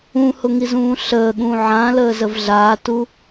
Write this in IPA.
ũhʊŋizũː ɬəːɠũː ʕãləːzəv ɮaːtu

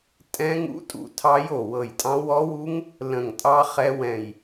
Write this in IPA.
tʼɛ̃˦˥ŋṵ˦˥tʼṵ˧˩tʰɑ˦˥j o˧˩wɤ˧˩jtʼɑ̃˦˥ wɔ˦˥wu˦˥ŋ | lə̃˧˩ŋtʼɑ˦˥ χɛ˦˥wɛ̃˧˩j

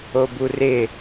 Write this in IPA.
oburɪ

